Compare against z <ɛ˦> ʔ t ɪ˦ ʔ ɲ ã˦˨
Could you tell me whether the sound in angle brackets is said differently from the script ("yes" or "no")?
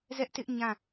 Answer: no